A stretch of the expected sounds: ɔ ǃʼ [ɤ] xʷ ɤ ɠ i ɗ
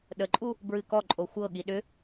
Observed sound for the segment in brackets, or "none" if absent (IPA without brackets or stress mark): o